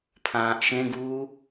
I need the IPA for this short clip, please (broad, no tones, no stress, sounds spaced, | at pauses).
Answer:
pʰ ãː ʔ ʃ ẽ ɡ uː